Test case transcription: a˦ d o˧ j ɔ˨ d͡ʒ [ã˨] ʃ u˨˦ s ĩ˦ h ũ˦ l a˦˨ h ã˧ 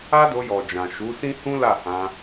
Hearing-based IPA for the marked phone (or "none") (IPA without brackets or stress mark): ã˨